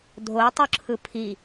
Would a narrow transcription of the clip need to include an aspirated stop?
yes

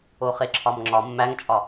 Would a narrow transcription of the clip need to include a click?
yes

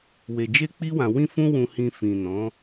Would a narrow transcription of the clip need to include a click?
no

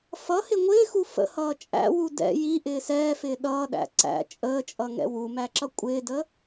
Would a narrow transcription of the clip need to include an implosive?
yes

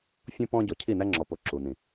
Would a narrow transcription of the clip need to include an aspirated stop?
yes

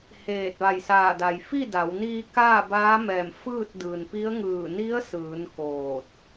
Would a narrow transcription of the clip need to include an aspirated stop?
no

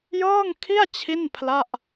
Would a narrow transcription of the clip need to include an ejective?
no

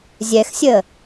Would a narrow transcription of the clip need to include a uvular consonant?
no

